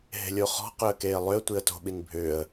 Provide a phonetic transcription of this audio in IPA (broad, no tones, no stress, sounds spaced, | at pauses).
ɦ e̤ lʲ o χ ɔ̤ q ʏ ə̯ k eː lˠ ʏ ə̯ tʷ i ə̯ t o̤ ɓ i n bʱ ʏː ə̯